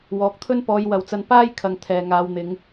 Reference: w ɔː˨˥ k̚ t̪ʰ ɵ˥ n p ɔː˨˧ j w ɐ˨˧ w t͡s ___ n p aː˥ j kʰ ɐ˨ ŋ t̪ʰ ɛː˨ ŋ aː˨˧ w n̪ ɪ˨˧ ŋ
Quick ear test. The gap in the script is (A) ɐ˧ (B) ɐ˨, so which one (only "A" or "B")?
A